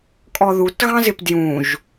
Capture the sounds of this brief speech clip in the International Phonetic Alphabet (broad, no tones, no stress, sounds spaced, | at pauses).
kʼ ɔ ð u t ɣ ɑ̃ z ɪ p d j ũ ʒ